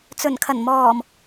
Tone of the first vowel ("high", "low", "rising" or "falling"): low